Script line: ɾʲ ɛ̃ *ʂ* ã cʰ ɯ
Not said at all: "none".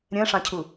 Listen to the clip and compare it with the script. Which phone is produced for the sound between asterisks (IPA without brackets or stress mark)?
ʂ